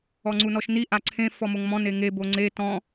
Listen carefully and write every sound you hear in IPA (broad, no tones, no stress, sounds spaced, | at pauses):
ɔ ŋ͡ǀ u n ɔ ʃ n i ʔ a ǀʰ ẽ f ɔ m o ŋ m ɔ̃ n e ŋ e b o ŋ͡ǀ e t ɔ̃